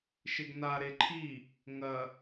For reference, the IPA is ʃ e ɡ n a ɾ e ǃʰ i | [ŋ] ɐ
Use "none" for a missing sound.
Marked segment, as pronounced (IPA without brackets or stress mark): ŋ